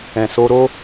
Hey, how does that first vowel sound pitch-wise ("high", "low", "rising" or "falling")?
low